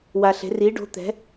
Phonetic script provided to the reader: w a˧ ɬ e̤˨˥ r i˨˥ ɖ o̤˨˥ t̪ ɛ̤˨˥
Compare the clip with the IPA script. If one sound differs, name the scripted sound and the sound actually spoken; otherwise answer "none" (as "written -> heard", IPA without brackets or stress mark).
none